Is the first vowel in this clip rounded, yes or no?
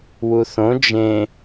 yes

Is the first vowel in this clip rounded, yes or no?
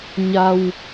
no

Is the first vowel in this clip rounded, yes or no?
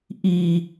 no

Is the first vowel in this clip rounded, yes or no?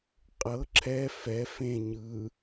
no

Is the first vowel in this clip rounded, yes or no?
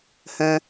no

